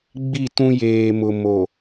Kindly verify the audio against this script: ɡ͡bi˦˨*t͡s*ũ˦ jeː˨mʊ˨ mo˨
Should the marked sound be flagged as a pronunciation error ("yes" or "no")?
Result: yes